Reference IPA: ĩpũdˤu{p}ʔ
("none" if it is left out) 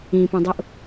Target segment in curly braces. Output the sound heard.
none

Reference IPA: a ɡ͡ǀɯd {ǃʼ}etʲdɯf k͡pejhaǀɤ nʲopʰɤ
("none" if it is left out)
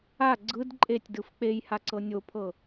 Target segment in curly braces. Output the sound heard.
ǃʼ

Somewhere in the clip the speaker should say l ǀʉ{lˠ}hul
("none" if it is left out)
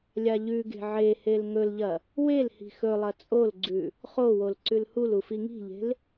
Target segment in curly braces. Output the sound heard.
l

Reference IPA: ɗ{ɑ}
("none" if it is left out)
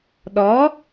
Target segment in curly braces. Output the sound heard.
ɔ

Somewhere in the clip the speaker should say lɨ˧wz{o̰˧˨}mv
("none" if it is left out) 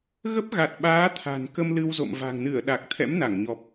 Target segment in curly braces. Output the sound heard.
o̰˧˨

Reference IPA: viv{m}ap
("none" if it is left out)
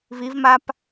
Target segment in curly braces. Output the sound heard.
m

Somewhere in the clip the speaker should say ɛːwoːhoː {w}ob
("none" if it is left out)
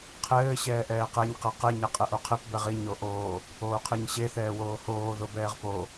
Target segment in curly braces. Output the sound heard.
ð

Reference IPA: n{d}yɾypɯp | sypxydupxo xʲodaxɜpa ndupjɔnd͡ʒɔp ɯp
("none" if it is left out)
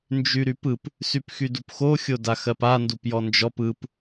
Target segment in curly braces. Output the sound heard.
d͡ʒ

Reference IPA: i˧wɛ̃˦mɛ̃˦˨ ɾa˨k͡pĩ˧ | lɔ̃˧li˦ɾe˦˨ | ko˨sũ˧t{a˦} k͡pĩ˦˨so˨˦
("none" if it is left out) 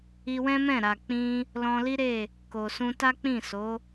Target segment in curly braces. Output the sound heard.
a˦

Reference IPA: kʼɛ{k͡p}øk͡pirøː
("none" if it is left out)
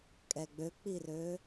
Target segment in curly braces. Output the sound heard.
ɡ͡b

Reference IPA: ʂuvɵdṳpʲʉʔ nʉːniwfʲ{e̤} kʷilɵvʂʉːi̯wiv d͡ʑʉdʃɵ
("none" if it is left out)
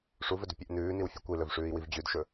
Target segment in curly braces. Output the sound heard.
e̤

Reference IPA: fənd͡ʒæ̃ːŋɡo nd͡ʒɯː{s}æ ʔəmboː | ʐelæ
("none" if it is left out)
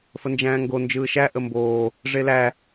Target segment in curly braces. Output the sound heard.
ʃ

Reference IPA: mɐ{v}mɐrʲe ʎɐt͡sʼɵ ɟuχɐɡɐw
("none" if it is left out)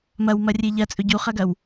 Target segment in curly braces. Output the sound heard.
w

